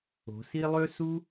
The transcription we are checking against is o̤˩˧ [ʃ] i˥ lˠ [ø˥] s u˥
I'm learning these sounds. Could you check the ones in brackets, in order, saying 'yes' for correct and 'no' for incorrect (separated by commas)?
no, yes